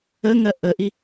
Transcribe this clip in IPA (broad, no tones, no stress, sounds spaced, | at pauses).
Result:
ə ŋ ɜ ʔ ə ʔ i